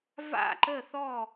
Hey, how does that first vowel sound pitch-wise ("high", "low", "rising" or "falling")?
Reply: falling